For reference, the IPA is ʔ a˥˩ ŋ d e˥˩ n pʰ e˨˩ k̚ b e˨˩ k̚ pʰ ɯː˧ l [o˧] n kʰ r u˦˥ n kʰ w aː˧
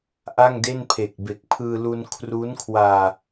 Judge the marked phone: incorrect: u˧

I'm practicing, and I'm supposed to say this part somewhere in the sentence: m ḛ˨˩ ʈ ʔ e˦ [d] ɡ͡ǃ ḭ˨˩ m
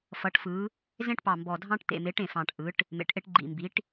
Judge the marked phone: incorrect: ʈ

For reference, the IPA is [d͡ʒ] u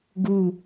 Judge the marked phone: incorrect: ɡ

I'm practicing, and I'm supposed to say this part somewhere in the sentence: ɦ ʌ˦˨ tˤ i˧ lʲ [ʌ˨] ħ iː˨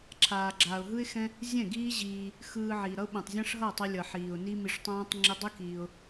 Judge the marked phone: correct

